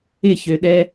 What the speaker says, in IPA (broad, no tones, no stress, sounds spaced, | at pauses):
ɪ ç ø ɗ ɛ